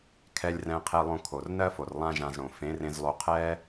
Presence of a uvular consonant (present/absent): present